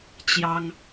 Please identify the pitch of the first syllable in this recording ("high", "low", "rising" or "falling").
high